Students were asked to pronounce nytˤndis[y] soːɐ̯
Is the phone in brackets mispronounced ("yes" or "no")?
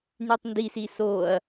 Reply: yes